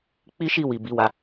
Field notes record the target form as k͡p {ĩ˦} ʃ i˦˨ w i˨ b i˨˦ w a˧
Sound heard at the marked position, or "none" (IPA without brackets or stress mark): i˦